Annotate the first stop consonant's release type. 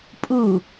ejective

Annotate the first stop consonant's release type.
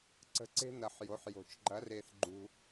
click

